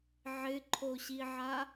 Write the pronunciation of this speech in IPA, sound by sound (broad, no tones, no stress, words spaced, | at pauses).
ʕɪǃʰoɕiʕa